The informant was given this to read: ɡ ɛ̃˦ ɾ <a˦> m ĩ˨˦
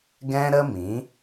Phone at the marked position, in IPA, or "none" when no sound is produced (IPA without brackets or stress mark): ə˦